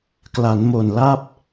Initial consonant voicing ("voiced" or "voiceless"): voiceless